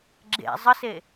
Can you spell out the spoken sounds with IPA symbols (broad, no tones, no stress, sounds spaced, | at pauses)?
ɡ͡ǁ ḛ zˤ ə s e